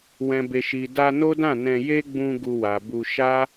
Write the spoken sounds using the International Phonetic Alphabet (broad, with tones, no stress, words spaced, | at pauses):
wɛ̃˨be˨ʃi˨ da˧no˦dã˦˨nɛ̃˧ je˦ɡ͡bũ˧ ɡu˧wa˨ bu˧ ʃa˦